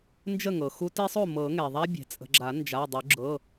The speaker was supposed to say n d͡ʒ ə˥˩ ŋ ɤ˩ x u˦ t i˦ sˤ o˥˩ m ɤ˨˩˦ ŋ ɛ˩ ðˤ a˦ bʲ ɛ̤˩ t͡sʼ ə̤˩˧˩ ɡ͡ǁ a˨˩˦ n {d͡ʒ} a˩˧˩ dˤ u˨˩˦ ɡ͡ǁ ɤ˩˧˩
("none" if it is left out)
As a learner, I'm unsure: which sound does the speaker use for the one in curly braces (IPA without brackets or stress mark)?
d͡ʒ